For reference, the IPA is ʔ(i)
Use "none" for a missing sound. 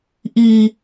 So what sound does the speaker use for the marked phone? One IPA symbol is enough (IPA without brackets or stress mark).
i